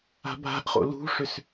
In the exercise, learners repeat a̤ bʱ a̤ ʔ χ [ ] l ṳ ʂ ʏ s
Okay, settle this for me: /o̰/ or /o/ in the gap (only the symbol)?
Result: o̰